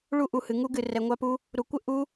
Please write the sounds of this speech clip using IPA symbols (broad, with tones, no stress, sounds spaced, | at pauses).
ɭ u˦˥ ʔ u˨ h ɨ˨ ŋ u˦˥ ɡ ɨ˨ r ɛ˨ ŋʷ a˦˥ p u˦˥ | ɾ u˨ kʷ ɘ˦˥ ʔ u˦˥